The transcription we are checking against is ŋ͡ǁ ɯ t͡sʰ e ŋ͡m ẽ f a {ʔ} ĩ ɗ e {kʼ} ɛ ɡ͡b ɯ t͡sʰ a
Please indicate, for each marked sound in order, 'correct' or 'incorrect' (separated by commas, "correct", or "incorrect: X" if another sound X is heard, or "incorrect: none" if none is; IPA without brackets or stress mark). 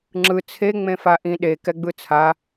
correct, incorrect: k